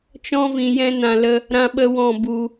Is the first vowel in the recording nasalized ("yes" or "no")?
yes